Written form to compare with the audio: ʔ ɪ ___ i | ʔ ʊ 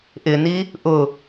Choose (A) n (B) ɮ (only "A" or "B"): A